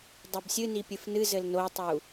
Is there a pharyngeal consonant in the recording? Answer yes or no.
no